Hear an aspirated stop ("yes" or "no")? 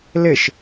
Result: no